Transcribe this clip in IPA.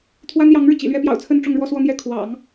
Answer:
t̪ʰ w a˥ n j ɑ˧˥ ŋ ɻ ɻ̩˧ t͡ɕ ḭ˨˩ l ɥ ɛ˥ p j ɑ̰˨˩ ʊ̯ t͡sʰ ə˥˧ n ʈ͡ʂ ʊ˥˧ ŋ ɻ w ɔ˥˧ s w ɔ˥˧ n̪ j ɛ˥˩ kʰ w ɑ̰˨˩˦ ŋ

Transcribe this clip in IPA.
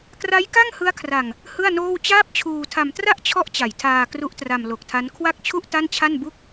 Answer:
k r a˦˥ j k a˥˩ ŋ h ɯ˦˥ a̯ kʰ r a˨˩ ŋ | h ɯ˥˩ a̯ n oː˥˩ w t͡ɕ aː˥˩ p̚ t͡ɕʰ uː˧ tʰ a˧ m t r a˥˩ ʔ t͡ɕʰ ɔ˦˥ ʔ t͡ɕ a˨˩ j tʰ aː˧ k r u˦˥ ʔ t r a˧ m l o˨˩ k̚ tʰ a˦˥ n kʰ w a˥˩ k̚ t͡ɕʰ u˥˩ ʔ t a˥˩ n t͡ɕʰ a˥˩ n b u˥˩ k̚

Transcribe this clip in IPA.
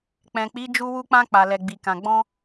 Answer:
k͡p ɛ̃˨ k͡p i˨˦ d͡ʒ u˧ w u˧ k͡p ã˧ k͡p a˨ l ɛ˨ ɡ͡b i˨ k ã˨ ɡ͡b ɔ̃˧

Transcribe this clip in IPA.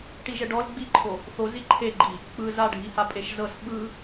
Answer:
ʈ i ʒ ɛ ɖ ɔ l ɡ͡b i ǃʰ o | θ o z i ǃʰ e ɡ͡ǃ i | k͡p ɯ z a ɖʱ i h a pʼ e ʃ z ɤ s ɓ ɯ

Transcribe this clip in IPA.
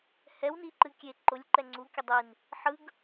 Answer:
h ɛ w n i ǃ ɨ kʲ e ǃ ʊ lʲ ǃ ɛ ŋ͡ǀ u kʲ ʊ dˤ i n | ħ ɯ ɡ

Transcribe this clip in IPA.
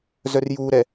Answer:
z œ r j uː ɾ ɛ

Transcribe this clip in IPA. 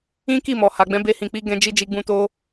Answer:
ĩ˦ k i˦˨ m ɔ˨ h a˨ ɡ͡b ɛ̃˨˦ b e˧ h ĩ˨ k͡p i˨˦ ɡ ɛ̃˧ d͡ʒ i˧ d͡ʒ i˧ ɡ͡b ũ˧ t o˧

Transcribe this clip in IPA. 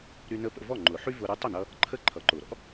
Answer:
ɾ y˧ n ə˧˥ p ə̰˧ v ɔ˥˩ ŋ͡ǃ ʊ˨˩˦ ħ y˥ v ʊ˧ ɾ y˧˥ tˤ ʏ˥˩ n ʌ˧ | ǃʰ ə˥ ǃʰ ʌ˨˩˦ ǃ ʊ˨˩˦ ɾ ɔ̰˥

